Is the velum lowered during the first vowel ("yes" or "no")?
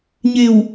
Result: no